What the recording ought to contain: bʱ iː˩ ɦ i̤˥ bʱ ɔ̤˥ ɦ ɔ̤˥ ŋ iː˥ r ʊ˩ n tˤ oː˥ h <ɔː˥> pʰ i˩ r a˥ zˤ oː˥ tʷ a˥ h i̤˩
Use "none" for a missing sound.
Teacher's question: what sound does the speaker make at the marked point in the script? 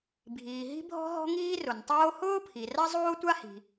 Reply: ʊː˥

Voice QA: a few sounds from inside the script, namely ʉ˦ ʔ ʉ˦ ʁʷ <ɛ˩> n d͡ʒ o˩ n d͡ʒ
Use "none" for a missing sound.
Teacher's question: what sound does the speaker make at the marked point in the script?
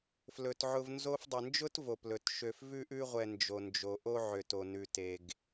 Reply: ɛ˨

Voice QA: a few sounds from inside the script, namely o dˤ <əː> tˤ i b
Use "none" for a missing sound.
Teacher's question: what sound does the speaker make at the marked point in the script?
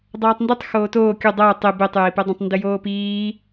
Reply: əː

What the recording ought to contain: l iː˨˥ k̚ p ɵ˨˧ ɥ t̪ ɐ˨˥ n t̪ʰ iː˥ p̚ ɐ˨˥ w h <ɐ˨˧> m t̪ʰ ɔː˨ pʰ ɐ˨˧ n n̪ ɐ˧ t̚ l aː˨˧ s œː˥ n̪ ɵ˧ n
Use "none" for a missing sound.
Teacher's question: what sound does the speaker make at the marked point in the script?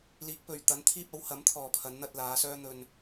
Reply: ɐ˨˥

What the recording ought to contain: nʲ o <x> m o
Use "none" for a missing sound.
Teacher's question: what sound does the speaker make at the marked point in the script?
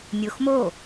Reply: x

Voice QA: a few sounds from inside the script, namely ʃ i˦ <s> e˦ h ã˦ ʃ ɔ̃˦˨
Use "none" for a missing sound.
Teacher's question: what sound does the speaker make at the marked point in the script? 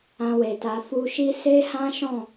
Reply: s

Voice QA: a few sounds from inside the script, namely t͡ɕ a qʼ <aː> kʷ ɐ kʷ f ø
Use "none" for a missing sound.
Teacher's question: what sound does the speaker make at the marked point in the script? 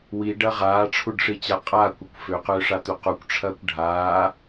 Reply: aː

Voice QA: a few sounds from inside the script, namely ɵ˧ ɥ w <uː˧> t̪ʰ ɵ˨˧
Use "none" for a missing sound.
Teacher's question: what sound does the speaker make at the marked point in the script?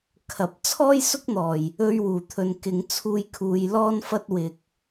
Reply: uː˨˩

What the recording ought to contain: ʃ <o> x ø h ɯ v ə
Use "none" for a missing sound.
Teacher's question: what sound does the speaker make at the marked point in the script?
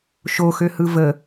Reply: o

